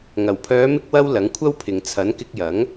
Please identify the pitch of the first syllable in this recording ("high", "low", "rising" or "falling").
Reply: low